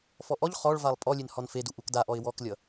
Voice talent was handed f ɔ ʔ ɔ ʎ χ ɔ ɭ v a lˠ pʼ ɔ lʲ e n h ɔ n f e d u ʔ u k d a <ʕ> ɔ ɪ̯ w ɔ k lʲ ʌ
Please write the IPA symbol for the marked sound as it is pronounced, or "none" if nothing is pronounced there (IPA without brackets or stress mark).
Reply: ʔ